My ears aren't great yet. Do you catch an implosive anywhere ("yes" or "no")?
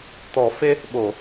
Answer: yes